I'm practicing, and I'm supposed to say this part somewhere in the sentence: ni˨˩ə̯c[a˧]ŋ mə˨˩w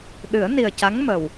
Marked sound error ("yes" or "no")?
yes